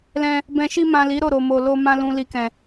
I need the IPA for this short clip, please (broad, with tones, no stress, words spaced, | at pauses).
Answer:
lɛ̃˧ | bɛ̃˨ʃi˧mã˨ li˨˦ɾo˦˨ɾo˨mo˨ lo˧mã˧ lũ˨li˨ kɛ̃˨